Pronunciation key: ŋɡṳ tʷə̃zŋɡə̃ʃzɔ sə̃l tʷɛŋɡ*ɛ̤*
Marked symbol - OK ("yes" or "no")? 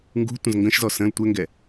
no